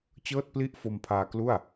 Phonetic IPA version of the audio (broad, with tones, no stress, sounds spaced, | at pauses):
t͡ɕ ɤː˥˩ t̚ p l i˥˩ ʔ f o˧ m pʰ aː˧ k l u˥˩ a̯